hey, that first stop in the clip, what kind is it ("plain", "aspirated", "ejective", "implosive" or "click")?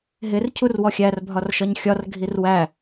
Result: aspirated